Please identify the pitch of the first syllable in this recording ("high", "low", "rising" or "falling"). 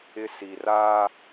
high